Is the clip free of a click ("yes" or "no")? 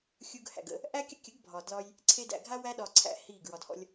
no